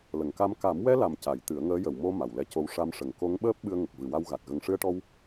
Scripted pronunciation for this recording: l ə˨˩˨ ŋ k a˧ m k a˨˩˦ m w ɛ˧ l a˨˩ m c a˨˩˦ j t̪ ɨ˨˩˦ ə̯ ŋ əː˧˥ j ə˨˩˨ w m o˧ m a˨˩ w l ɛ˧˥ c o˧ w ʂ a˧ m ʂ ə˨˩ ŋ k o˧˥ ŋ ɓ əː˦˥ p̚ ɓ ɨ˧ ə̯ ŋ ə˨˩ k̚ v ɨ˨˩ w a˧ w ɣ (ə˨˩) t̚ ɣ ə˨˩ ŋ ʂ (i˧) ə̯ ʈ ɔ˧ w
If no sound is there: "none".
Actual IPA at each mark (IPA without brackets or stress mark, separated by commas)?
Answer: a˨˩, ɨ˧